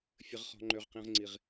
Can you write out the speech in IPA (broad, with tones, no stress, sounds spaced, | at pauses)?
fʲ ə˦ ʁ χ ɔ̤˦ ŋ͡ǃ ø˦ ʁ q ĩ˦ ʁ ŋ͡ǀ i˦ ʁ